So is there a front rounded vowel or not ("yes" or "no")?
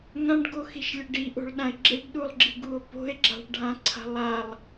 no